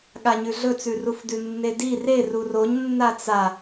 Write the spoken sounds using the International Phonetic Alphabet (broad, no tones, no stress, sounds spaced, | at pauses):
ɠ a ɲ ʉ ɮ ɵ t͡s ʉ r u f d ʉ nː e d i r e r u r o ɲ nː a t͡s a